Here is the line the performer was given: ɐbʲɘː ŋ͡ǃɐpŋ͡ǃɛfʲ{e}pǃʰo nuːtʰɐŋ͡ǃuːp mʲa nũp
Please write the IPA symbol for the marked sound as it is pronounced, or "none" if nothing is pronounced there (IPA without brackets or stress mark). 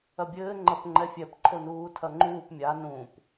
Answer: ɛ